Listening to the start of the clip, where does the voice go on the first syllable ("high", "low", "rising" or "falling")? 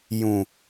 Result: low